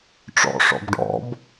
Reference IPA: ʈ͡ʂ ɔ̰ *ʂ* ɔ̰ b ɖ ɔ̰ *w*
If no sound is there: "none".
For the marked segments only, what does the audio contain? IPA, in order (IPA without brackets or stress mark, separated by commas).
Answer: ʂ, b